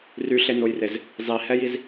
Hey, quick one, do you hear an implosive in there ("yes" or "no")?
no